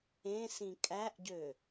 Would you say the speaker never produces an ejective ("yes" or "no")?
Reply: no